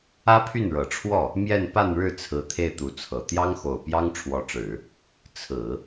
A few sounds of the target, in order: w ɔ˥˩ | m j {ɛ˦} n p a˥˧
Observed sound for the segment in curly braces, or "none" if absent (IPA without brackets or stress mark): ɛ˥˧